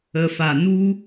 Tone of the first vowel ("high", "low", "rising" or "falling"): low